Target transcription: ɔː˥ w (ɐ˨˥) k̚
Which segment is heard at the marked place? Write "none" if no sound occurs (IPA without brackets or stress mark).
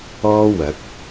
ɐ˨˥